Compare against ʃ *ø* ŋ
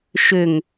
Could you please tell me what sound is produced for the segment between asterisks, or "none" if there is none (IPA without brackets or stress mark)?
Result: ø